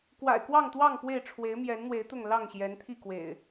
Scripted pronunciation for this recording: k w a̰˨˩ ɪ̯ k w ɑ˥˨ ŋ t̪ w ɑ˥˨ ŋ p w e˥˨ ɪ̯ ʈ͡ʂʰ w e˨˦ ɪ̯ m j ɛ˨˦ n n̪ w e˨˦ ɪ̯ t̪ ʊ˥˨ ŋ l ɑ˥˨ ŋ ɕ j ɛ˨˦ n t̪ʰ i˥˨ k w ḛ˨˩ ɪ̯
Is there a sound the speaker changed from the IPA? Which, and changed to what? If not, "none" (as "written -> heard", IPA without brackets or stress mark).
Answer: none